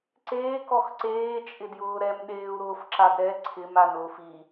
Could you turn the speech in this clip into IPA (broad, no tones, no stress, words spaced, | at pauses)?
ǀeːk ɔxǀeː t͡ʃʼɪdjʊːɾɛm ɗeːu̯ɾʊːfǁadɾɛ ǀʰɪm anʊːfi